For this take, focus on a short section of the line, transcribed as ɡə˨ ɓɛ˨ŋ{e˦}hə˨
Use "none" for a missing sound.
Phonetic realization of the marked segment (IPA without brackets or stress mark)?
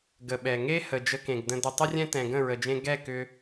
e˦